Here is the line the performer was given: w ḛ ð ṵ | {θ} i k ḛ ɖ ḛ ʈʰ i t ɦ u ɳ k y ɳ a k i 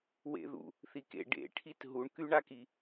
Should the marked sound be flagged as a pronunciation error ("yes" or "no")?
no